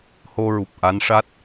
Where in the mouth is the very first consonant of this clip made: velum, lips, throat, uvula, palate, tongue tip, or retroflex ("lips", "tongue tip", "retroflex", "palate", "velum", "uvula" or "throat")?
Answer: throat